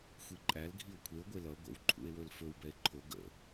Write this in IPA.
xʷiǃʼæl ɡʱio̯kʷʰeo̯ ɡʷelʌ ɡʷə̰w ǃʰṵe̯wɵlfɵw bɛe̯ǃʰo ɡə̰

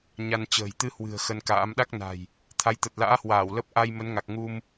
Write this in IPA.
ɲa˧n t͡ɕə̤ː˨˩jt̪ɨ˧ hwɨ̤˨˩ə̯ xə˧nka̰ː˧˥m ɗa˦˥k̚na̤˨˩j | t̪ʰa˨˦jt̪ə˨˩t̚la̰ː˧˥hwaː˧˩w lə˦˥p̚ ʔa˧j mə˨˦nŋa˨˩k̚ŋu˧m

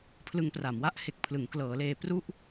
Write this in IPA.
pʰlɯ˧ŋpra˩˦mwa˦˥ʔ he˨˩k̚pʰlɯ˩˦ŋklɤː˩˦leː˧ pru˥˩ʔ

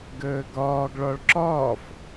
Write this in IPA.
ɡəːɡɒːɡ ɭɒɭǁɒːf

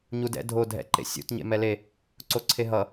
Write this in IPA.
ɲudɛ̰ dʱo dʱɛ̰ǃḛ sʲṵt ɲḛmɛle | ǀoǀʰeɦʌ

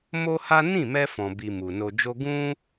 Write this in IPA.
mo˦ha˦ nĩ˦˨mɛ˧fɔ̃˨bi˨ mu˨no˧d͡ʒo˦ ɡũ˦

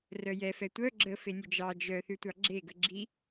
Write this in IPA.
rœjɛfɛ tʷœ ɡ͡ǁə fenʲœd͡ʒɑ d͡ʒœθʉtʷɑ ɡ͡ǁeɡə ɡ͡ǁi

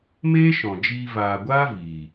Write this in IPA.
meː˦ʃɔ̃˨ d͡ʒiː˧ vaː˨ɡʷaː˦ viː˨

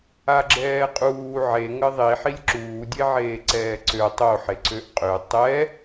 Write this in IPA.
aɡ͡ǁɛːqʼuː ʕe ŋəðˤi ħilʲǁuːdʲeʕeː ǀɛːǀø tˤoħe ǀøʔqʼø tˤɛ

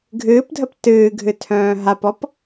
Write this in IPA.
ɡʱɨːpdʱəp tɨːɡʱɨtʰœ̃ː ɦapɔp

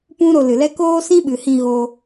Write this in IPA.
pũ˦ɾo˧lɨ˨lɛ˦ koː˦sĩ˦ɓɨ˨hĩ˧ ɣoː˧

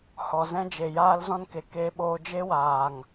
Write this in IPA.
hɔ˨zɛ̃˦d͡ʒe˨jaː˦l zɔ̃˦nke˨ keː˦ɓoː˦ d͡ʒe˦waː˨ŋ

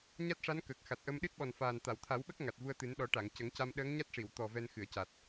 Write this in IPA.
ɲa˦˥t̚ʂa˧˥n kəː˨˩k̚xa˨˩t̚ʔə˧m ɗɨ˦˥t̚ɓɔ˨˩nfaː˨˩n t̪a˨˩˨wt̪ʰa˨˩˦wɓə˦˥k̚ ŋa˨˩t̚vu˧ə̯t̪ɨ˨˩˦n ɗɔ˨˩˦ʈa˨˩˨ŋ cə˨˩˦ŋca˧m ɗəː˧˥ŋɲa˦˥t̚ʂi˨˩˨wt̪ɔ˨˩ vɛ˧nxɨ˨˩˨ə̯ca˨˩t̚

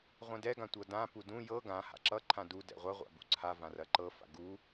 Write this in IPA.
ʁʷɛ̃dɛ ɡãtʷɤdã pudũ jɤ ɡã ha̰ǁʌ ǃʰãdu dɛ̰ʁʷɐ ʁʷa̰bṵǀʰa vãrɐǃɤ fa̰ɡu

